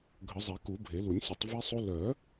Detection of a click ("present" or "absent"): absent